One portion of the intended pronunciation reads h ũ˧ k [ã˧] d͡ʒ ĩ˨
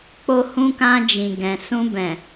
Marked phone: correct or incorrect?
correct